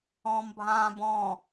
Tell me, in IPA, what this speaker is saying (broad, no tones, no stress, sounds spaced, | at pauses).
ɔ̃ː m bʱ ãː b ɔ̃ː